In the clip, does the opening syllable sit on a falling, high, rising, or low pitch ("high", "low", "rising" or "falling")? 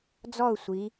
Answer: falling